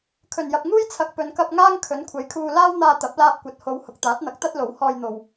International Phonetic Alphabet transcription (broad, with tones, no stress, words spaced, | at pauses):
kʰɵ˨˩njɐ˨p̚ŋuː˥jt͡sʰɐ˨k̚ pɵ˨˧nkɐ˧p̚ŋaː˥ŋ kʰɵ˨˥nkʷʰɐ˨˥jkʰuː˧ laː˥wn̪aː˧ t̪ɐ˨˥p̚laː˧p̚kʷɐ˨t̚ ho˨˧w hʊ˨k̚t̪aː˨˥t̚n̪ɐ˨˥k̚t̪ɐ˥t̚ lo˨˥whɔː˧jn̪o˨w